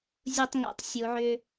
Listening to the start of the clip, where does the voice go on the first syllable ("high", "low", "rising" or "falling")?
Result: low